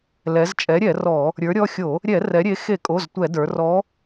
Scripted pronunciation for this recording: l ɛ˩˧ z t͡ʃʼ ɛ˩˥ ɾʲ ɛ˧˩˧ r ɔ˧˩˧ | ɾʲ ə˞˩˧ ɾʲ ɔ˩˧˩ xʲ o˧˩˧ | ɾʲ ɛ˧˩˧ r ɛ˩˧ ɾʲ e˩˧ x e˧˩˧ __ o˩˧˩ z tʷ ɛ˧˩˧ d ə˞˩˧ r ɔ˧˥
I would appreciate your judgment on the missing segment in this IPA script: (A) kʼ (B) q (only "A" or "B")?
A